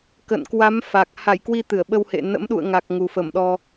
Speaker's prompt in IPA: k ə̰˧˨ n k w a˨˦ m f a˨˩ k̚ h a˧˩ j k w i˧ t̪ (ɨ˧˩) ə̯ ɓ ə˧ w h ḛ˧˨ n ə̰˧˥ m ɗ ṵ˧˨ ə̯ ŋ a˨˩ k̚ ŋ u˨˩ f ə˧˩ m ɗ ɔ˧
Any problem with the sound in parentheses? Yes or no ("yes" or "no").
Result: no